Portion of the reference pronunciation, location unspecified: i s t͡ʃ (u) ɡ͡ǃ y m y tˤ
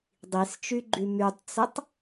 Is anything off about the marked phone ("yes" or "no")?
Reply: yes